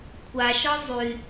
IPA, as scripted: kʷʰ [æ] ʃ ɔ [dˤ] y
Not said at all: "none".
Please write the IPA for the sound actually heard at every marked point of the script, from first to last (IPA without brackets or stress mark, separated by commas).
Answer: a, zˤ